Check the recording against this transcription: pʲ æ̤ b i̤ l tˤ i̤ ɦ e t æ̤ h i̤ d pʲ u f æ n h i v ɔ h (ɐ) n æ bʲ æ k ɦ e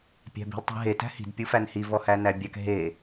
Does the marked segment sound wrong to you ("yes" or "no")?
yes